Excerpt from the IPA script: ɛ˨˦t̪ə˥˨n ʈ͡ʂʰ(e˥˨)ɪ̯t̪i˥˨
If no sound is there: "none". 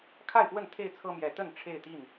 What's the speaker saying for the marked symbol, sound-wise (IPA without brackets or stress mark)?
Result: e˥˨